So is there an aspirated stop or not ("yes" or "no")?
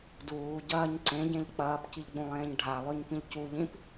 no